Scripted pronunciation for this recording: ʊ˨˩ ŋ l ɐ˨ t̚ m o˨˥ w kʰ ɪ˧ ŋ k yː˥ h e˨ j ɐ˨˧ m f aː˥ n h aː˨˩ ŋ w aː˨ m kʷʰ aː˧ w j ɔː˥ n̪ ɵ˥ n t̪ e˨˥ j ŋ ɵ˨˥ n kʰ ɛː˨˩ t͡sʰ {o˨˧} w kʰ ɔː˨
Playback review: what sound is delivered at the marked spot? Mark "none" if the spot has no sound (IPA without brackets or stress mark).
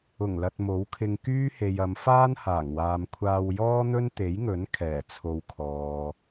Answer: o˨˧